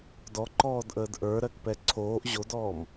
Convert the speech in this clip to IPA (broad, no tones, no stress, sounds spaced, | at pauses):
d ɔ ǃ ɔː d ʔ əː d ʔ ə˞ ɾ ɜ k p ɛ ǀʰ oː ʔ ʑ o d ɔː m